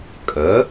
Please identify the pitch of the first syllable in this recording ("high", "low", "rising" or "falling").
rising